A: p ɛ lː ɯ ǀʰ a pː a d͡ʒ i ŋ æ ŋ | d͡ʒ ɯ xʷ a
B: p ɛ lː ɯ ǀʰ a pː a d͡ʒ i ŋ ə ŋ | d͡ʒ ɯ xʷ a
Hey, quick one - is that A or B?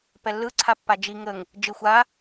B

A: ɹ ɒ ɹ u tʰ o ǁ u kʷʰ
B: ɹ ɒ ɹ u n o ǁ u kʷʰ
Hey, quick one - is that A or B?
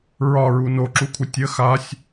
B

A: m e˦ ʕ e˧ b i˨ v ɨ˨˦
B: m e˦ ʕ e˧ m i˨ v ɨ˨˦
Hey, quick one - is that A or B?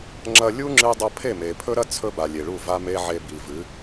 A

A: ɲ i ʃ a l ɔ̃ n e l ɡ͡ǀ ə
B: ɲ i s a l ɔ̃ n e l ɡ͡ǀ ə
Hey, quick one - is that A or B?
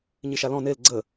A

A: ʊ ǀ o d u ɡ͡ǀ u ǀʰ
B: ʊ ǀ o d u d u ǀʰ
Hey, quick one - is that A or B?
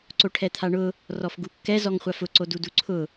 B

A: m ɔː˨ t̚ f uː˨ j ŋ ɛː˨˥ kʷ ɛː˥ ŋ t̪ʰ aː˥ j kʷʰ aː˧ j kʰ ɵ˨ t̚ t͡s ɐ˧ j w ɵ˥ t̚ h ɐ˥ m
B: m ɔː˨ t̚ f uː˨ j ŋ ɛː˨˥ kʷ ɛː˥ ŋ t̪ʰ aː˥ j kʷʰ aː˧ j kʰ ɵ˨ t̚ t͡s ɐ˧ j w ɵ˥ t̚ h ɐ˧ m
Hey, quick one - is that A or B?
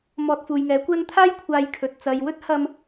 B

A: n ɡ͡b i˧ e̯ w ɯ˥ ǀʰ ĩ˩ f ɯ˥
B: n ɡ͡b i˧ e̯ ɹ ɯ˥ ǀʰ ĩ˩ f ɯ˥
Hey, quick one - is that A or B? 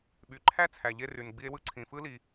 A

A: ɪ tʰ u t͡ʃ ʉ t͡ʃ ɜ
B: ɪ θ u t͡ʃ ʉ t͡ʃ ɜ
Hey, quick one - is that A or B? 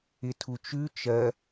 A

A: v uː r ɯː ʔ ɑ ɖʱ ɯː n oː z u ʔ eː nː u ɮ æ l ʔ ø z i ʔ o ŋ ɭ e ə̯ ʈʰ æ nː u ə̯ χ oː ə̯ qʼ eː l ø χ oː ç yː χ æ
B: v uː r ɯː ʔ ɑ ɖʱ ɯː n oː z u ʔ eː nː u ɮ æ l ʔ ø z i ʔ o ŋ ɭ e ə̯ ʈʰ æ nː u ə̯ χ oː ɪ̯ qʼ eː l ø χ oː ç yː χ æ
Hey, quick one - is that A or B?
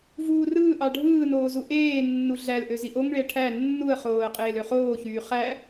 A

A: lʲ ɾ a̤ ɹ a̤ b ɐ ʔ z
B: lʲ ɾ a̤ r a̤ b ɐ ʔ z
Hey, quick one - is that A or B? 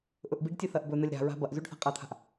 A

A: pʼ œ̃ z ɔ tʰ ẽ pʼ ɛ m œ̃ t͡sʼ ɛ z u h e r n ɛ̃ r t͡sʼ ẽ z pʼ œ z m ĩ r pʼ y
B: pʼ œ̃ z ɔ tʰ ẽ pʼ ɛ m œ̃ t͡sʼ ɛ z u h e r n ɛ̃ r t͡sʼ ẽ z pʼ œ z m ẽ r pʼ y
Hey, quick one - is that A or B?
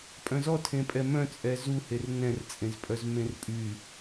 B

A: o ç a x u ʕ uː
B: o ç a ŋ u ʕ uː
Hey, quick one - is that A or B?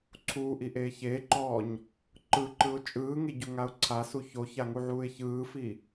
B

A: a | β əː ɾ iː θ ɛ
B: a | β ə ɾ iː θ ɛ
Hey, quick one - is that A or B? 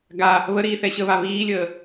B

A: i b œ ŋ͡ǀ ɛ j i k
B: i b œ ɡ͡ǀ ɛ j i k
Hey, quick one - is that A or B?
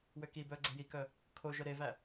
B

